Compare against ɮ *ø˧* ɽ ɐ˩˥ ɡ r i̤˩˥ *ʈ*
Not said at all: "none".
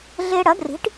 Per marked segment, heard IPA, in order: e˧, ʈ

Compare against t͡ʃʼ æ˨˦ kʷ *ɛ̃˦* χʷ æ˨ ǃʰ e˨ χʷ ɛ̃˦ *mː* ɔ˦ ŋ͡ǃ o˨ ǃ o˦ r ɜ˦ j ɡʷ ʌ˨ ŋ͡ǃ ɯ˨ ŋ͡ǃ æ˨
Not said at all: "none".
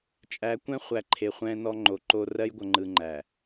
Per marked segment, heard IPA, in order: ɛ̃˦, n

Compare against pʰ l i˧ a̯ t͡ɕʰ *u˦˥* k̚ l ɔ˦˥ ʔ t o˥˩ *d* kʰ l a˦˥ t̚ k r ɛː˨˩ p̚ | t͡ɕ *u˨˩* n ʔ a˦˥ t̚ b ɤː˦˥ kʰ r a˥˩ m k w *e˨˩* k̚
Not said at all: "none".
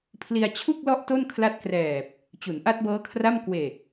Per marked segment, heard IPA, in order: u˥˩, n, u˩˦, e˨˩

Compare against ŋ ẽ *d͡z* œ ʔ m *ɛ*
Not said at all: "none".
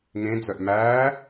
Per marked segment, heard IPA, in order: d͡z, æ

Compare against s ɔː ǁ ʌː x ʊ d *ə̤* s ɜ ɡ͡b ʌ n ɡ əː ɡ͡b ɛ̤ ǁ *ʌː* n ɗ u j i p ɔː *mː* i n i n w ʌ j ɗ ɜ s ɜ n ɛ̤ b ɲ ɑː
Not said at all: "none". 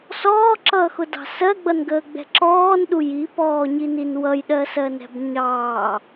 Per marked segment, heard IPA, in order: ɑ̤, ɔː, ɲ

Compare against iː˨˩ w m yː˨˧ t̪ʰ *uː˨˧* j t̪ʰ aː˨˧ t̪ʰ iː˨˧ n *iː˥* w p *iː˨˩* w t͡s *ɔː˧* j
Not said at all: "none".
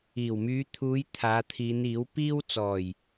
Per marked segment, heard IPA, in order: uː˨˧, iː˨˥, iː˥, ɔː˨˩

